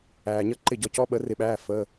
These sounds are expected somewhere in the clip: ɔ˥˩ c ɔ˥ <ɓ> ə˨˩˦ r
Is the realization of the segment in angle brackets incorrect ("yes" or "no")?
no